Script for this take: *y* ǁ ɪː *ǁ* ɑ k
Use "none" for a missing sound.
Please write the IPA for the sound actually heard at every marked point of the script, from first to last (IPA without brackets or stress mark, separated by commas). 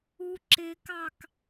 u, k